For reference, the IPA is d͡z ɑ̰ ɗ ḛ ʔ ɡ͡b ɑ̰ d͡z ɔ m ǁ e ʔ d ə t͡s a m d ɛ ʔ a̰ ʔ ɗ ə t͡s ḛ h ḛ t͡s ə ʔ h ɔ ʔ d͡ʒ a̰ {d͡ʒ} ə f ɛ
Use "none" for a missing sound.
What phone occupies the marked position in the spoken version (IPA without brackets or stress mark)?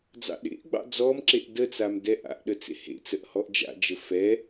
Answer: d͡ʒ